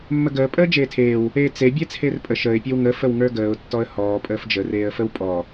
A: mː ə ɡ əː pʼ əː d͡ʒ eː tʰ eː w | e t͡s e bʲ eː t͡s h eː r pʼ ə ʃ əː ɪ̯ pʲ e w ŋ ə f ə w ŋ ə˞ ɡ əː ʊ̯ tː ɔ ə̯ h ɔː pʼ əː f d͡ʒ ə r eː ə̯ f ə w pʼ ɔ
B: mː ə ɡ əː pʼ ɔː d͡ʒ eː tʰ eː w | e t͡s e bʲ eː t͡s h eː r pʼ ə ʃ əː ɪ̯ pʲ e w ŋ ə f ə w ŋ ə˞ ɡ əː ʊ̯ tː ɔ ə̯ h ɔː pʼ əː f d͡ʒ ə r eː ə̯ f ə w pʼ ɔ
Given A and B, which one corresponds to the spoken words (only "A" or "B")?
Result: A